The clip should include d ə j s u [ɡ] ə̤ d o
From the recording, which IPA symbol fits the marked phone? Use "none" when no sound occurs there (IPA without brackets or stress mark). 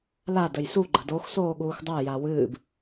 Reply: ɡ͡ǃ